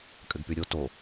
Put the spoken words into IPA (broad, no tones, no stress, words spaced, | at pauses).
kʼɘɡpyɾʲo to